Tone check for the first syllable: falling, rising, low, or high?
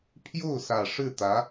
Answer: falling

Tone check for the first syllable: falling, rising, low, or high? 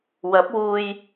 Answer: rising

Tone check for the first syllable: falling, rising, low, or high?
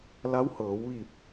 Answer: rising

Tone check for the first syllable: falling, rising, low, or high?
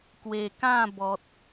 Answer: low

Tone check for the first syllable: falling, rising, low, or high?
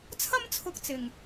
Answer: high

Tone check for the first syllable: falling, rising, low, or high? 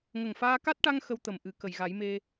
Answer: low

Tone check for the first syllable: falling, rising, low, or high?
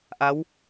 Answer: rising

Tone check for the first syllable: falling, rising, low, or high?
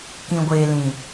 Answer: low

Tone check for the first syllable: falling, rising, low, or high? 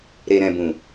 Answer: low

